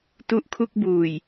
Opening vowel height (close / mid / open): close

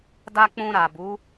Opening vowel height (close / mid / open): open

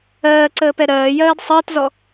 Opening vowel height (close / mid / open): mid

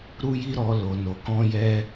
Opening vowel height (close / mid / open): close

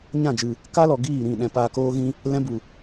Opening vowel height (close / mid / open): open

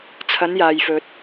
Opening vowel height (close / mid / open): open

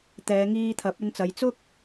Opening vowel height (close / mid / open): mid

